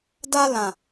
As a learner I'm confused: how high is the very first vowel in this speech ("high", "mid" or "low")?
low